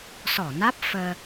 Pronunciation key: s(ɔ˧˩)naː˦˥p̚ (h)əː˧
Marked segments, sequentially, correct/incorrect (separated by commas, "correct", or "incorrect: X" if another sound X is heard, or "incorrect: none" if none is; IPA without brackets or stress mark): correct, incorrect: f